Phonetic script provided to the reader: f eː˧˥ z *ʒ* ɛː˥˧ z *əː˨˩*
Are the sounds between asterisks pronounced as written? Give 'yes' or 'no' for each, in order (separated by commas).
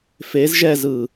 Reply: yes, no